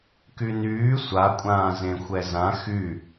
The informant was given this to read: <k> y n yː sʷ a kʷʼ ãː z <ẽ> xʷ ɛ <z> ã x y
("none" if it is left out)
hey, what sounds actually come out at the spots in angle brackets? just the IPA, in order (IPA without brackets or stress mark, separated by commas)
k, ẽ, z